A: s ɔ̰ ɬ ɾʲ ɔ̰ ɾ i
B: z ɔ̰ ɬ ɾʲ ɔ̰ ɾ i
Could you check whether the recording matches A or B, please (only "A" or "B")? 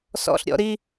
A